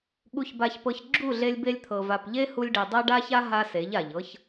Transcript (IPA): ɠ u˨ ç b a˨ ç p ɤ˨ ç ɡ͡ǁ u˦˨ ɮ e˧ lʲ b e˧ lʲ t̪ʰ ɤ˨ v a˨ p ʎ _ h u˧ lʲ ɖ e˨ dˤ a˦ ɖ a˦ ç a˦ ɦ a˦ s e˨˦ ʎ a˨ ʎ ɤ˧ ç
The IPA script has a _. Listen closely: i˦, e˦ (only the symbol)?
e˦